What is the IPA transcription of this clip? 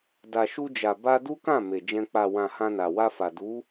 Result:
d a˨ ʃ u˧ d͡ʒ a˨ b a˧ d u˦ k ã˦˨ m e˨ d͡ʒ ɛ̃˧ k͡p a˨ w ã˨ h ã˧ n a˨ w a˧ f a˨ d u˨˦

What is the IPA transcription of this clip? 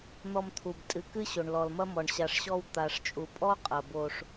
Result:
n̪ ɔ˧ m t̪ʰ u˨ b tʼ ɨ˨ k ɨ˦ ɕ o˨ ɳ l ɔ˨ l m ɐ˦ m ɔ˨ ɳ ɕ a˨ ʂ ɕ ɔ˧ w t̪ a˨ ʂ t͡ʃʼ u˨ pʼ ɔ˦ qʼ ɐ˨ b o˧ ʂ

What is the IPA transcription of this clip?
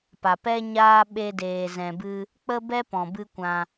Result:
p a˨ p ɛ˦ ɲ aː˦ ɓ e˦ d eː˧ z ɛ̃˧ b ɨ˦ | k͡p ə˦ b ɛ˦ p ɔ̃˨ b ɨ˦ kʷ ã˧

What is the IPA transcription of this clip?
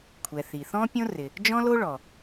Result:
kʷʰ ɛ˩ θ i˩ θ ɔ̃˥ pʲ õ˥ r ɪ˩ | d͡ʒ ɔ̃˥ l o˥ ɭ ɔ˩

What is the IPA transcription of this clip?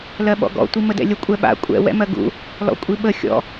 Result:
l ɜ ɓ ɔ̰ ɡ ɔ̰ tʷ i m ə d ɛ̰ lʲ ə kʷʼ ɛ ɓ a̰ kʷʼ ɛ̰ w ɛ̰ m ɜ ɡ ṵ | l ɔ̰ kʷʼ i ɓ ə xʲ ɔ̰

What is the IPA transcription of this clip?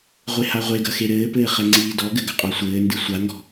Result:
ʁʷ e h a ʁʷ e ɡ ɐ x e ɾ ɘː p ɘː χ ɛ ŋ͡ǀ iː d ɔ ɡ ɘ ɡ ɐ qʼ ɔ sʷ ɘː n d ɨ sʷ a ŋ ɡ ɔ̤

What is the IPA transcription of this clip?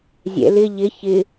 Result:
zʲ ɛ̰ l ɪ ʎ ɪ ç ɪ

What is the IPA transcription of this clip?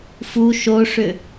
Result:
f u ʃ o ʂ ʏ

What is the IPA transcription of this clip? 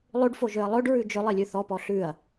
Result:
lˠ ʉ ɖ f o ʒ ø ɐ̯ lˠ ɵ ɖ ɹ ʉ d͡ʒ ɵ lˠ i lʲ ʉ θ ɔ p ɔ ɬ ʉ ɐ̯

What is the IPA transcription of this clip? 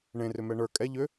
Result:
ɳ ẽ r ʏ m ɛ ɳ ə˞ kʼ ɛ ʎ ʏ

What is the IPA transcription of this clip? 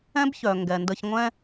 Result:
ɛ̃˥ b ç œ˩ ŋ ɡ ɛ˩ n d ə˧ ç ŋʷ ɛ̃˥

